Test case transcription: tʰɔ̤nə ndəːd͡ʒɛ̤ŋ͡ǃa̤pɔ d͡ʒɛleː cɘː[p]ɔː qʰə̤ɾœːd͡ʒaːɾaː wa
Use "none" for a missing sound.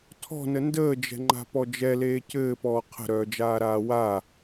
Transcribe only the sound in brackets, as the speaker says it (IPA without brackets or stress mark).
p